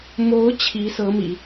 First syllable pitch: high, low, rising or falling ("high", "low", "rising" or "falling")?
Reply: rising